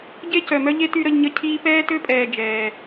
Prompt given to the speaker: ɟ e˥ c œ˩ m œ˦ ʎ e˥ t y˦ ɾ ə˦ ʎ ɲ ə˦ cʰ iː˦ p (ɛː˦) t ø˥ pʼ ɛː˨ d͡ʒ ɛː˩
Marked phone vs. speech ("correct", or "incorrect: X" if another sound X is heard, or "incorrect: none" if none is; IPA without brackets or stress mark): incorrect: ɛː˥